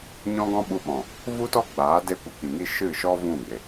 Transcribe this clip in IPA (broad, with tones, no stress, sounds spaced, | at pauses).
ɲ ɔ̃˦ ɡ ɔ̃˦ ɓ u˧ ɓ ɔ̃˨ | v u˦ t ɔ˦ ɡ͡b aː˨˦ d e˧ kʷ ə˨ k ĩ˨ ŋ i˦ ʃ ɨ˦˨ ʃ ɔ˦ v ũ˦˨ ɡ͡b e˨